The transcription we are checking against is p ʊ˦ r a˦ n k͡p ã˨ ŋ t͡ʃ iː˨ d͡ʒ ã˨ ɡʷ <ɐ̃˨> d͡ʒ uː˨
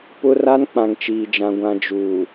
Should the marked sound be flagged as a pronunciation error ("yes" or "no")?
yes